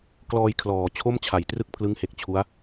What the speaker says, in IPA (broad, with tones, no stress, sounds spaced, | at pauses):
k l ɔː˧ j kʰ l ɔː˩˦ t͡ɕʰ o˥˩ m t͡ɕʰ a˩˦ j t r ɯ˥˩ k̚ pʰ l ɯ˦˥ ŋ h e˨˩ k̚ t͡ɕʰ u˦˥ a̯